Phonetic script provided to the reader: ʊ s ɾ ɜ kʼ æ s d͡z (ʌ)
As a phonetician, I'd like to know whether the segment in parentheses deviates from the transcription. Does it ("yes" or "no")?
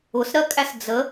yes